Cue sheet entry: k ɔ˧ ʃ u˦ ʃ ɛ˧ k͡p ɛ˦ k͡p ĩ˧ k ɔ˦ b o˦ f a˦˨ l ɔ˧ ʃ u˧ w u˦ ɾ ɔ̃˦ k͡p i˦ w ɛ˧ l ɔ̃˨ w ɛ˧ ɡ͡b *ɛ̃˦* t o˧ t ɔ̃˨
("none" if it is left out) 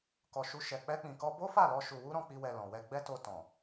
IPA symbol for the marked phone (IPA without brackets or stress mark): ɛ˦